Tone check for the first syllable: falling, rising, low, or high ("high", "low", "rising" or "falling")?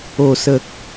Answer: low